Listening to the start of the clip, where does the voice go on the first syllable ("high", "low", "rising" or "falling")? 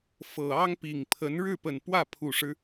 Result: low